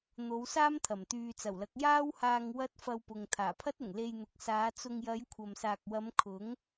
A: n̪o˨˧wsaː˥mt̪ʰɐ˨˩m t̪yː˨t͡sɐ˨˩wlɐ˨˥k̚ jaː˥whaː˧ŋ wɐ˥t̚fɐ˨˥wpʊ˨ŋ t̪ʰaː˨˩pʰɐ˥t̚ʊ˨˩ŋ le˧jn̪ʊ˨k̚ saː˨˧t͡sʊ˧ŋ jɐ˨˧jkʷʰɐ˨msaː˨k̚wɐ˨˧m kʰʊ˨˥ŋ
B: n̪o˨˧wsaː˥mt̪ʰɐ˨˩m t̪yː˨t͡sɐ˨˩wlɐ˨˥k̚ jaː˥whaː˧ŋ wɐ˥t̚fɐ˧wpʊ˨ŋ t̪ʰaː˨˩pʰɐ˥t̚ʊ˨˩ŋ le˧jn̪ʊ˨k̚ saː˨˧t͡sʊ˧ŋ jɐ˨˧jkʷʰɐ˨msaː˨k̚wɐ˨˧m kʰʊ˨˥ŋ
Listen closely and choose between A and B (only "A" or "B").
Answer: B